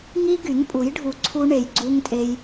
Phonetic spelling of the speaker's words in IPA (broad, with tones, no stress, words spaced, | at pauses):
ŋi˦ɡy˨˦ŋpʼu˨˦jɖʱu˧ ǀʰu˦ɳe˧jɡ͡ǀu˦ŋtʼe˦j